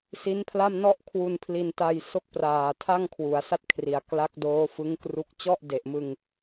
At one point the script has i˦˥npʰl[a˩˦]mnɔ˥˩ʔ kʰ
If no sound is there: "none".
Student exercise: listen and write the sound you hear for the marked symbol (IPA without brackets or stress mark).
a˥˩